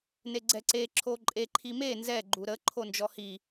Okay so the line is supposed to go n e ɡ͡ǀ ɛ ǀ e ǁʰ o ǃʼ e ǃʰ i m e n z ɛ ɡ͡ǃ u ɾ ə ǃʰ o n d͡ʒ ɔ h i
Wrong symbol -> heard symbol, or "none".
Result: none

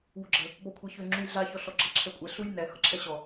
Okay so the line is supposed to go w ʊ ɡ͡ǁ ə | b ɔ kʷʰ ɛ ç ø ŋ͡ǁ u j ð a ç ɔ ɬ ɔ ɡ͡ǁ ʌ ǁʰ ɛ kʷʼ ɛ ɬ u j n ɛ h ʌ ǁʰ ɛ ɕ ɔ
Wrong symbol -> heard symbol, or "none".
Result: ð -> ɮ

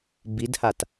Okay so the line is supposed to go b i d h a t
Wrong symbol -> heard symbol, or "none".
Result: none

